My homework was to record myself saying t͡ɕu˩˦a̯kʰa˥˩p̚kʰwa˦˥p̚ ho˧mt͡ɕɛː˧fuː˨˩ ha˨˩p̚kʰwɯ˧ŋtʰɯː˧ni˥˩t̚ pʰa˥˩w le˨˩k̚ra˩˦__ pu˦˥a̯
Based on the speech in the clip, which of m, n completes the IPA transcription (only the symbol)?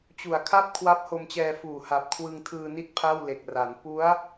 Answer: n